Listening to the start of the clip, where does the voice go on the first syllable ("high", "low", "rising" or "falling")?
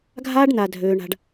high